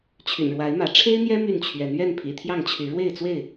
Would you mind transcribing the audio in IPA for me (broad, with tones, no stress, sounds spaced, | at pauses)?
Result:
t͡ɕʰ y̰˨˩ n ɻ w a˨˦ ɪ̯ m ä˨˦ ʈ͡ʂʰ e˦ ɪ̯ n̪ j ɛ˦ m y˥˨ n t͡ɕʰ ɥ ɛ˨˦ n ɥ ɛ˥˨ n pʰ ḭ˨˩ t̪ʰ j ɑ˥˨ ŋ t͡ɕʰ y˨˦ ɻ w e˥˨ ɪ̯ t͡s w e˥˨ ɪ̯